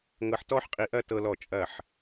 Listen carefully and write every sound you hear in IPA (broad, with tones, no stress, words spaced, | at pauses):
ŋɤ˧ħtɔ˥ħqʼi˧ʔɐ˥˧ tɤ˧lɔ˧˩t͡ʃʼɐ˧˩ħ